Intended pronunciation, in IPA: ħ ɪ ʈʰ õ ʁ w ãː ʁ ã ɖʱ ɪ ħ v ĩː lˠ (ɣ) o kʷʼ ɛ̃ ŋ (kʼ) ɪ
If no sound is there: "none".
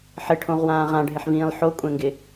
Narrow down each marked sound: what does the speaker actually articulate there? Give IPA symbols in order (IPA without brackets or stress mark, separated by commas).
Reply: ħ, ɡ